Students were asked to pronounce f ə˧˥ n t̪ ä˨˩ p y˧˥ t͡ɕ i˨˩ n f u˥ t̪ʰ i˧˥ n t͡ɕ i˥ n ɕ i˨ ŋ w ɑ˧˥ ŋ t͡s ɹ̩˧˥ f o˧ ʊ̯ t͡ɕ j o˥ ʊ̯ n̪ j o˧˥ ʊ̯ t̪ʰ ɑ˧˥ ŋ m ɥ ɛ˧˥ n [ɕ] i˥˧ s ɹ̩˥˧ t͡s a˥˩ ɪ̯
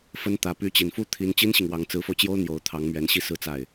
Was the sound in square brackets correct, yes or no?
yes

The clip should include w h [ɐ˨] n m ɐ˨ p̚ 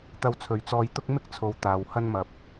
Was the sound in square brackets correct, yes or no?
no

